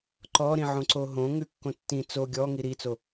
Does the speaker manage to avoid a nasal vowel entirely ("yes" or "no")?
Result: no